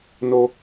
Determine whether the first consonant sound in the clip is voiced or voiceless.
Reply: voiced